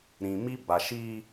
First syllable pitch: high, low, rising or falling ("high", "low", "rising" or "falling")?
low